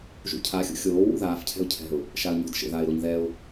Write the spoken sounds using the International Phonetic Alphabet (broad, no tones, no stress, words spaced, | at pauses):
ʒṵcʰaxʲṵ xʲoː wṵðaːfcʰɛ̤ʊ̯ cʰɛ̤ʊ̯ | ʃaə̯ɲɔ̤d ʃḛðaɪ̯ɾoɲ ðɛʊ̯